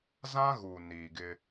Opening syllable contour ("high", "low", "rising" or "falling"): high